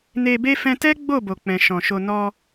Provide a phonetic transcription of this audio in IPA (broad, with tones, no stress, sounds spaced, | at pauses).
n e˧ b e˦ f ɛ̃˧ t ɛ˦ ɡ͡b o˦˨ b o˨ k͡p ɛ̃˨ ʃ ɔ̃˨ ʃ o˧ n ɔ˧